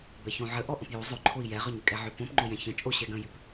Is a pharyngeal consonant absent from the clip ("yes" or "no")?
no